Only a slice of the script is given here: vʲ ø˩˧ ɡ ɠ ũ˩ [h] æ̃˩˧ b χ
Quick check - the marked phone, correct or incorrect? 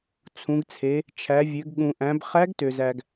incorrect